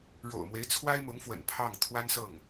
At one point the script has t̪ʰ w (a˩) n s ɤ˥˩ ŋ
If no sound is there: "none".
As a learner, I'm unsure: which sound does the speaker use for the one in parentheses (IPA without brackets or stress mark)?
a˥